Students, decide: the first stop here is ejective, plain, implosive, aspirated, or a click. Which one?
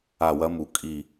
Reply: ejective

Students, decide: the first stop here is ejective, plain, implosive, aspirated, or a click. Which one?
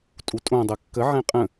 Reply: ejective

